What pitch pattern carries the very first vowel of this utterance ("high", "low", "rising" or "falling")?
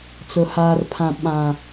low